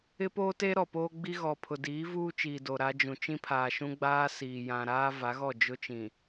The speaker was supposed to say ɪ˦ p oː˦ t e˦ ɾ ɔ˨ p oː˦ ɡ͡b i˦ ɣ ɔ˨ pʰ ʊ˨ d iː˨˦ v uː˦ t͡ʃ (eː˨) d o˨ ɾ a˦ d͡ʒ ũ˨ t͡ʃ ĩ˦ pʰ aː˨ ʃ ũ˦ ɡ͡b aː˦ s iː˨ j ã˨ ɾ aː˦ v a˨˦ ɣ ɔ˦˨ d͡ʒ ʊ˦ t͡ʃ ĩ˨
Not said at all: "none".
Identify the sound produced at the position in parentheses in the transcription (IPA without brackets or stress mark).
iː˨